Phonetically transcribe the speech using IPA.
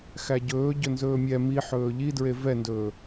x æ ɟ ɵː ɟ ɵ n z ɵː mʲ ɛ m i ħ ɵː ʎ i d ɹ e v ɛ n d ɵː

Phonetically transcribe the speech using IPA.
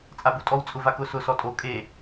t͡sʼ a b u tʼ ɔ w t͡sʼ ʊ v a k ʊ s ʊ s ɔ tʼ o kʼ e

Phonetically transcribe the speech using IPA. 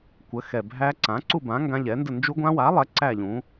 kʷ ə˨˥ x ɛ˨ bʱ æ˦˥ ǀ ã˨˥ ǀ u˥˧ b ã˨˥ ŋ ɡ ã˦˥ ʎ ɛ˨˥ n d ə˥˧ n d͡ʒ u˦˥ ɡʷ ã˦˥ w a˨˥ lˠ ɛ˨˥ ǀ æ˥˧ ʎ ũ˨˥

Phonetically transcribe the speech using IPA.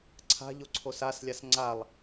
ǀʰ a̤ ʎ o ǀʰ o s a s lʲ a s ŋ͡ǀ a lˠ

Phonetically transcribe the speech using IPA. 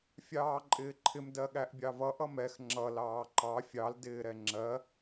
fʲ ɑː ǃʼ ɪː ǃʰ ɪ m d ɜ ɠ æ ʔ bʲ ɑ v ʌ ʔ ʌ m ɛ x ŋ͡ǁ ʌ l ɑː ǃ ɑ fʲ ɑ l d ɪː ɾ ɛ ŋ͡ǁ ɜ

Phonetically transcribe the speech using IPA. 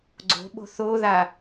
ɡ͡ǀ o̤ ɓ o̤ θ o ð a

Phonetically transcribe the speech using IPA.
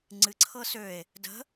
ŋ͡ǀ ɨ ǀʰ ɤ s ø e̯ | d ə̤

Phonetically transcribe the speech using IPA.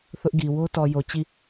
θ ʊ˦ ʔ ɡ i˨ w o˦ t ɔ˨ j o˨ t͡ɕ i˦˨

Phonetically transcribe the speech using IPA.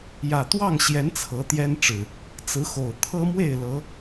j ä˨˩ t̪ w ɑ˥˨ ŋ ɕ j ɛ˨˦ n t͡sʰ ɤ˨˦ t̪ j ɛ˦ n ʈ͡ʂ ɻ̩˨˩ | t͡s ɹ̩˨˦ x o˨˩ ʊ̯ t̪ʰ ɤ˦ m w e˥˨ ɪ̯ l ɤ˨˦

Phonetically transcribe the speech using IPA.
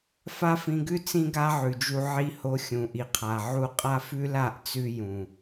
f a˦ f ĩ˧ ɡ ʉ˦ t͡s ĩ˦ ɡ a˦ ʕ ʉ˨ d͡ʒ u˧ ʕ i˧ h o˧ xʲ ũ˨ ʔ i˨ qʰ a˨ ʕ u˧ qʼ a˦ f ʉ˦ l a˦˨ ʔ t͡s ʉ˧ j ũ˨

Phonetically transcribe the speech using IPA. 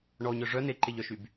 ɳ ɔ ɲ œ ʐ œ n e ǃ e ʎ œ ʃ y b

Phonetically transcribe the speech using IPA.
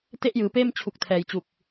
t e˥˩ ʔ j ɯː˩˦ p eː˥˩ m t͡ɕʰ u˨˩ k̚ tʰ ɛː˩˦ j t͡ɕ u˨˩ k̚

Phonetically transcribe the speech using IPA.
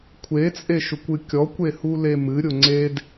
kʷʰ e t͡sʼ e ʃ ʊ kʷ ɨ kʲ ɔ kʷ e h u l e m ɨ ɾʲ ʊ ŋ͡ǀ e d

